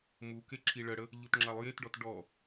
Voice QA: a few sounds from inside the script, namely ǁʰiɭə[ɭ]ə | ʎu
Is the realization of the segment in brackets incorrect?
yes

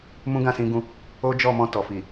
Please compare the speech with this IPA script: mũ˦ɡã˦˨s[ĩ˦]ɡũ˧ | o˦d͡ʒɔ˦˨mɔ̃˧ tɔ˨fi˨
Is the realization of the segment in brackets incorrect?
yes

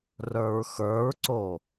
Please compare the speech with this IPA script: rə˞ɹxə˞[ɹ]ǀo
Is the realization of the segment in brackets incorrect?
no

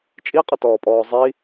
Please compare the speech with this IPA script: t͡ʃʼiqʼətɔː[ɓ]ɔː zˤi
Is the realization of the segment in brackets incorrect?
yes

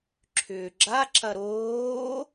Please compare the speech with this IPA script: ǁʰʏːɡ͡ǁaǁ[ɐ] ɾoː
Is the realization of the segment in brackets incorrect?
no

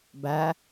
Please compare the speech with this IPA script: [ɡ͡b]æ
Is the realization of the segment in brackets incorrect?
yes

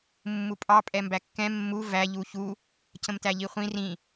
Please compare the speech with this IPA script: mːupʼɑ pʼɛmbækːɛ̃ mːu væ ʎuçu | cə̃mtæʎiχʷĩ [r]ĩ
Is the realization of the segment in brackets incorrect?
no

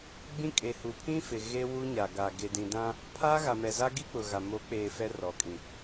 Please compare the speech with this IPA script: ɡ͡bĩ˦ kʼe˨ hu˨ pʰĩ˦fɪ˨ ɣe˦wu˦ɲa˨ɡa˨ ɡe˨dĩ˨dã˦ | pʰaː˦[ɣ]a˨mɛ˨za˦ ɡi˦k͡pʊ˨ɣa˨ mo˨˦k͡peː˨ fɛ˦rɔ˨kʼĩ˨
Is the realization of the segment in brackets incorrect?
no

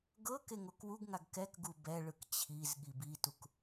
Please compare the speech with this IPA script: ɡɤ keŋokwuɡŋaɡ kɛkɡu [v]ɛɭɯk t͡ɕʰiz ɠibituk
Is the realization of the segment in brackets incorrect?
yes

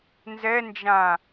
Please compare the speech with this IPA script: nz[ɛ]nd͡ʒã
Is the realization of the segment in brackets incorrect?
no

